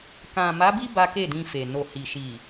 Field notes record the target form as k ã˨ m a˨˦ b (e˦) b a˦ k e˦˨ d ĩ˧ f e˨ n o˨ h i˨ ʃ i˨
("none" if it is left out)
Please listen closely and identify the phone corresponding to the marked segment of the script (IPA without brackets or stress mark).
i˦